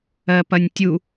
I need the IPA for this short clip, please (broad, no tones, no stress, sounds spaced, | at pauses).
ɜ p ɐ nʲ tʲ u